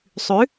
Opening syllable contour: rising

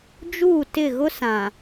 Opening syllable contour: falling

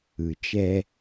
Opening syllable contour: low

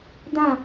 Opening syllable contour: falling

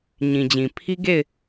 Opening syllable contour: low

